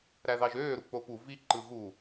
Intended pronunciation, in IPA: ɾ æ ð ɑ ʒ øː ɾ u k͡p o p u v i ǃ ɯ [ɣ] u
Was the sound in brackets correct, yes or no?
yes